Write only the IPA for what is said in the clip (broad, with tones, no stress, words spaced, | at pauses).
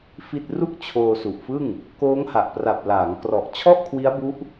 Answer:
fi˥˩t̚ ru˥˩k̚t͡ɕʰoː˧su˨˩ʔfɯ˥˩ŋ | koː˦˥ŋha˨˩ʔpra˨˩p̚ laː˩˦ŋkrɔ˨˩ʔ t͡ɕʰɔ˥˩ʔkʰwi˦˥a̯bu˦˥ʔ